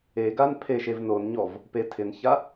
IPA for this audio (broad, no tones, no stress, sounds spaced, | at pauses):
e ɡ a n pʰ e ʃ e v n o n ɲ ɔ v | p e tʰ ɪ n ç a